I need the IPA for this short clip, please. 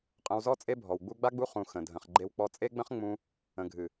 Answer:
qʼ ə̃˧ w z ɔ˦ t͡sʼ e˦ bʱ ɔ˨ w ɡ͡b u˦ ɡ͡b a˦ ɡ͡b u˦ χ ũ˧ x ə̃˨ dʱ ə̃˨ χ ɡ͡ǃ e˧ w k͡p ɔ˧ t͡sʼ e˦ ɡ͡b ə̃˦ χ ŋ͡m ũ˧ | ə̃˨ ɡʱ ɨ˨

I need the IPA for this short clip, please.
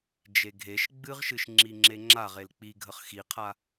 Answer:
d͡ʒ e ɡʱ e ʃ ɡ͡b ɨ ʁ ʃ ɨ ʃ ŋ͡ǁ i ŋ͡ǁ e ŋ͡ǁ a ʁ e l k͡p i ɡʱ ə χ x i qʰ a

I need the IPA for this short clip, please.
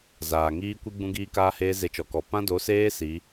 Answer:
z aː˨ ŋ iː˦ kʷ i˦ ɡ͡b ũ˦ ɡ iː˦ k aː˦ h eː˦ z e˧ t͡ʃ ɔ˨ k ɔ˨ p ã˦ d o˨˦ s eː˦ s i˨˦

